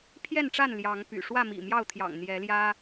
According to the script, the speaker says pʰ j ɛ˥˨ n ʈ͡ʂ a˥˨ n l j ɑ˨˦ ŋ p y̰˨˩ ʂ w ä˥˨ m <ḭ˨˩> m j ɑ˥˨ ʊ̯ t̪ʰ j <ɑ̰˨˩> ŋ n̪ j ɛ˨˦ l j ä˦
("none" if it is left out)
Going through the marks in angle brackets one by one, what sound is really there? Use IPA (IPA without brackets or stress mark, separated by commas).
ḭ˨˩, ɑ̰˨˩